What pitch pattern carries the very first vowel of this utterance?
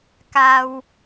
high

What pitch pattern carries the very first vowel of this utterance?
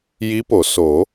rising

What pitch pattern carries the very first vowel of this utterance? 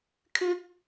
high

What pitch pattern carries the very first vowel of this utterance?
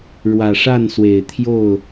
low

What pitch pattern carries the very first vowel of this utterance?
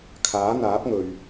rising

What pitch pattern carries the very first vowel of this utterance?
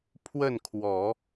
falling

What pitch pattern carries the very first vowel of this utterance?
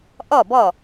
falling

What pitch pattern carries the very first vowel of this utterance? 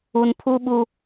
low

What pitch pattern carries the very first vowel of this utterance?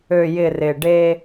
low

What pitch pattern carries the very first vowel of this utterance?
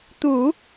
low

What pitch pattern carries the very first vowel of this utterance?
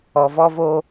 low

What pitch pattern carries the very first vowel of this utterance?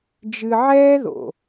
low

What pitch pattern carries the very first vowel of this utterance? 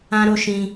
high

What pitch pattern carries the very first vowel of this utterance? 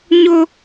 high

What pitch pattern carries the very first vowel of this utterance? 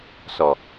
low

